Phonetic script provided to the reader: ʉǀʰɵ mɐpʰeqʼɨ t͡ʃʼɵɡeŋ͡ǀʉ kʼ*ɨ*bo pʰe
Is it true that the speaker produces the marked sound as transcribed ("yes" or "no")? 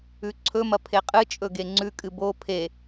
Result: yes